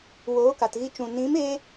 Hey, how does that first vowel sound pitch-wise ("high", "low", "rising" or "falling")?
rising